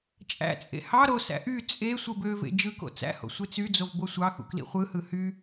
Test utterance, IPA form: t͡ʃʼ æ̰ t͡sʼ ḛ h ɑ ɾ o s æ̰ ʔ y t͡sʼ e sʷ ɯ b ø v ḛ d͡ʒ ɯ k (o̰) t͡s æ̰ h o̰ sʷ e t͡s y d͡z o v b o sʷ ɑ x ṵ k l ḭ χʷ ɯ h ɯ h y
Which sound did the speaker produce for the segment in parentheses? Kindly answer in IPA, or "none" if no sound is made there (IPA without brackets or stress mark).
o̰